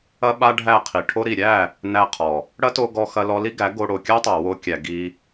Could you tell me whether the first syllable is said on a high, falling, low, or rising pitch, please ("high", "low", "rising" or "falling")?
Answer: high